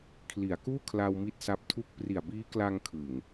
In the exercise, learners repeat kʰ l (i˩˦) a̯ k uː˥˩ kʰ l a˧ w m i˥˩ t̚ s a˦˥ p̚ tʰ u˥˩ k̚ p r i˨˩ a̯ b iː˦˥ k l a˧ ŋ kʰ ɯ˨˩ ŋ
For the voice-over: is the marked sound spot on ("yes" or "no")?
yes